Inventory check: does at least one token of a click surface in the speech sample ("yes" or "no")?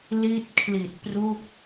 no